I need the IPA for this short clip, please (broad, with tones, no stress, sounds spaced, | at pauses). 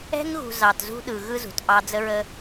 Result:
ɛ̤˧ ŋ ɣ ṳ˨ z ɑ˨ t z ṳ˦ ɗ ɯ˨ ɣ ɯ˦ z ṳ˨ t ʔ ɑ˧ d͡z ə˦ ɹ ə˦